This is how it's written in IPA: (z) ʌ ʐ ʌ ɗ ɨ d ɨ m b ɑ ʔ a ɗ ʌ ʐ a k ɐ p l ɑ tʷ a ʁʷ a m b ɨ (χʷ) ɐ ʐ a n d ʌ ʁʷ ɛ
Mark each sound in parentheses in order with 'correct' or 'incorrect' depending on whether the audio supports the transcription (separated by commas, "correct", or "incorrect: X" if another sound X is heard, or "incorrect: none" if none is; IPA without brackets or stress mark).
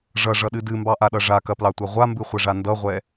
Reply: incorrect: ʐ, correct